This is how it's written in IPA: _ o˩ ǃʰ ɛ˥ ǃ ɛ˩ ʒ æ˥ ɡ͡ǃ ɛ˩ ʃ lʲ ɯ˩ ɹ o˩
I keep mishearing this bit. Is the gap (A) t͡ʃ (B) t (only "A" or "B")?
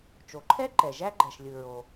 A